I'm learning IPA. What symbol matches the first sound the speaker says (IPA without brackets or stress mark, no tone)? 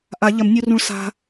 ʔ